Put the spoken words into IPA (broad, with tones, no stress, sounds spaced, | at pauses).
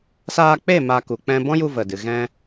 s aː˧ k͡p e˦˨ m a˧ k u˨ k͡p ɛ̃˧ b ɔ̃˦ j u˧ v ə˨ d ɨ˨ ɣ ɛ̃˧